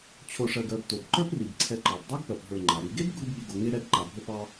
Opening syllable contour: low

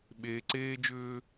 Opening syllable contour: low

